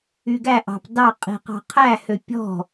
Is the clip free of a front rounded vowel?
no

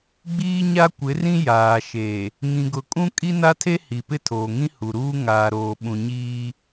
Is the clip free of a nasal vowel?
no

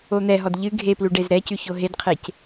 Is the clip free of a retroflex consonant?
no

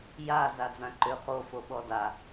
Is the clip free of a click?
no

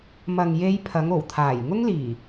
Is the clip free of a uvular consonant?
yes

